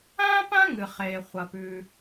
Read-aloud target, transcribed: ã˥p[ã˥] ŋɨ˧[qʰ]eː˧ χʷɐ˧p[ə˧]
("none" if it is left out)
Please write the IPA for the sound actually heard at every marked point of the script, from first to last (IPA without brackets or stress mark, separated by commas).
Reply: ã˥, χ, ʉ˧